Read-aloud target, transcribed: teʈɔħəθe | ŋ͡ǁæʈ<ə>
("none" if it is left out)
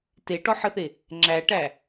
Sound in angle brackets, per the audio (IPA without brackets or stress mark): æ